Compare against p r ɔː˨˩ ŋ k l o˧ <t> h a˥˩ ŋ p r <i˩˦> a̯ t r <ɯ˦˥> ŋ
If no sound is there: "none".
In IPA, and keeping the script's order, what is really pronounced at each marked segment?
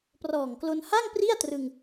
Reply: n, i˥˩, ɯ˧

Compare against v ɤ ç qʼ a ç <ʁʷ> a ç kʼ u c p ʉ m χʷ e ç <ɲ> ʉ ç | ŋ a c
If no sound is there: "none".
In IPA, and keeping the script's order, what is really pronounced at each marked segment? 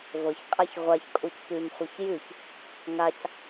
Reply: ʁʷ, j

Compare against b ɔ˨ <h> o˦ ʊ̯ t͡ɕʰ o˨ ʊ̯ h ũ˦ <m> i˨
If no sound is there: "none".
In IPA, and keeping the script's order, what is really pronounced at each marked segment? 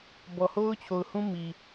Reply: h, m

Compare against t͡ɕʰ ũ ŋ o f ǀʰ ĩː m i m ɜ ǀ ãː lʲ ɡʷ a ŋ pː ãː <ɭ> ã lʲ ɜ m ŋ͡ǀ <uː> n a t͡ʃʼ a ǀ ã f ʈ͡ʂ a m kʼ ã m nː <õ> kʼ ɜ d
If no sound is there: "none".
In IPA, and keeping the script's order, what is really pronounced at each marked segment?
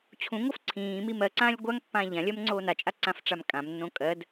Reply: ʎ, oː, õ

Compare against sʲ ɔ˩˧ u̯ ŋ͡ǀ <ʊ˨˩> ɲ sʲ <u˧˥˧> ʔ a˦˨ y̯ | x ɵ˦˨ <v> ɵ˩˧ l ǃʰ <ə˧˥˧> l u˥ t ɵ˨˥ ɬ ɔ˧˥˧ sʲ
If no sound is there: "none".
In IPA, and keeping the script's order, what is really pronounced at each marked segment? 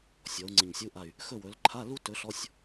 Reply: ə˨˩, u˧˥˧, w, a˧˥˧

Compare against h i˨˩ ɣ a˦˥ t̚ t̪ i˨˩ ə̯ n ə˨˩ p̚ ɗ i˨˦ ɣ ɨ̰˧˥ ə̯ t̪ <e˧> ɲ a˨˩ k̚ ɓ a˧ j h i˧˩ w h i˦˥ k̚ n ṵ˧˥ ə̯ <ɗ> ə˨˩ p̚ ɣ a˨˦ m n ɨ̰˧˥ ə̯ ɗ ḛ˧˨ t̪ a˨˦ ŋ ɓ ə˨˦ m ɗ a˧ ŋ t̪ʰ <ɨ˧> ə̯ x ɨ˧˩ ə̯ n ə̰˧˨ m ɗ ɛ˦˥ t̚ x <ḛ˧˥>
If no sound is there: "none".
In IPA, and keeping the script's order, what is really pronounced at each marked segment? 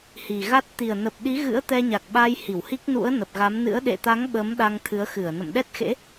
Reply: ɛ˧, n, ɨ˨˦, ḛ˧˥

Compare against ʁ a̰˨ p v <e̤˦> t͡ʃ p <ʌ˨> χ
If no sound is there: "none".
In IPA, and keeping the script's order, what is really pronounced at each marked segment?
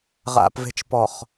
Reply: e̤˨, ɔ˨

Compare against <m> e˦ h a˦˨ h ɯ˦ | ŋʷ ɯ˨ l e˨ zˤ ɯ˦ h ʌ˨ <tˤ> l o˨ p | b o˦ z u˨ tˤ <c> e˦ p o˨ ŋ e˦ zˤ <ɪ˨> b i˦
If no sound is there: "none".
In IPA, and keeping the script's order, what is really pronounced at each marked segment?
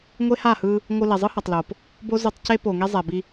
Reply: ŋʷ, tˤ, c, ɛ˨

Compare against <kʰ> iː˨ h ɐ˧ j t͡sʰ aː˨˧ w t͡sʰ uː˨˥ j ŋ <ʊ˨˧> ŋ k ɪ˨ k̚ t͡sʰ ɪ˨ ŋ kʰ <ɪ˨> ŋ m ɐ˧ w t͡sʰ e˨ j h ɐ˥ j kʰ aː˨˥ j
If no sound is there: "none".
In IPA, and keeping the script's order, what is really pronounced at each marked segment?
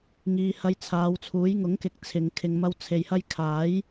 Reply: ŋ, ʊ˨˥, ɪ˨

